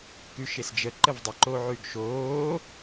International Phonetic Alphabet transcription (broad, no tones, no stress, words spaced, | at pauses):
kʉʃesd͡ʒə ǃəvdˤə ǃoʕʉɡʃoː